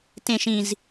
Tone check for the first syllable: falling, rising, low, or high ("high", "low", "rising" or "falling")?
low